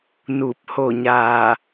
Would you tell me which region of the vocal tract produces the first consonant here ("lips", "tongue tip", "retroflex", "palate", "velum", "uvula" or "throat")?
tongue tip